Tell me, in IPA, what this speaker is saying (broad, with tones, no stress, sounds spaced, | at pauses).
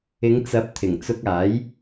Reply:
ɪ˨˧ ŋ t͡s ɐ˨˥ p̚ t̪ʰ ɪ˨˩ ŋ t͡s ʊ˧ k̚ aː˨˥ j